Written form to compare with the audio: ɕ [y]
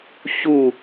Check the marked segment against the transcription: incorrect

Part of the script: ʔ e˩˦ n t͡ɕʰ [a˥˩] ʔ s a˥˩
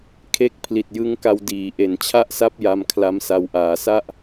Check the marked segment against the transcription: correct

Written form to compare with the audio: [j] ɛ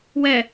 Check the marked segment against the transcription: incorrect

